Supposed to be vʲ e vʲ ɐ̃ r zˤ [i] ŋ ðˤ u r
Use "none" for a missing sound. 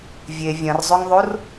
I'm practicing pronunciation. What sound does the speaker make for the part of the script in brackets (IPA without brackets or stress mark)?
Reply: y